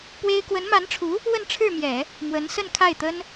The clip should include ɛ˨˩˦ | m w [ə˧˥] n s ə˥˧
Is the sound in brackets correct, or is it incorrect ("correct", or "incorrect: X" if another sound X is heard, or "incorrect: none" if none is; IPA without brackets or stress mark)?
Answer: correct